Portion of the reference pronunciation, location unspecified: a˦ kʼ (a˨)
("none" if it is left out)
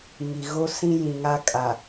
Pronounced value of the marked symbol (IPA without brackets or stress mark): a˨